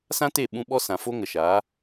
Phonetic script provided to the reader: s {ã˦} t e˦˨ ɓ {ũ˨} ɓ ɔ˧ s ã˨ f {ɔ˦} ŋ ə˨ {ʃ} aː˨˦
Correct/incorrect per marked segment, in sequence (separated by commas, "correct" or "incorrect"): correct, incorrect, incorrect, correct